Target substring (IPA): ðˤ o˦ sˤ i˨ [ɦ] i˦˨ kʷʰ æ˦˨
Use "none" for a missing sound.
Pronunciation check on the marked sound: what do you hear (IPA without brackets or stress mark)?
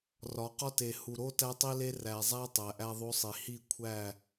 h